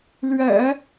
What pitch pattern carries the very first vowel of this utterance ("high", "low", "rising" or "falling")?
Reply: low